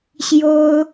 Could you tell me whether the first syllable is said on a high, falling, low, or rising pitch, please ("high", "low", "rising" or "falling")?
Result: high